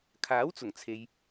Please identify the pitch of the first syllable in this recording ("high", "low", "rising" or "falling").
rising